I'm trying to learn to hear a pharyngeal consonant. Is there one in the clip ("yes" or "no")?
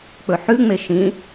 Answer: yes